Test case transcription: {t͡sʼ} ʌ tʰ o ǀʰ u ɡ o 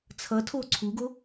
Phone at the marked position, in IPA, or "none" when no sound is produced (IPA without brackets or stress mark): t͡sʰ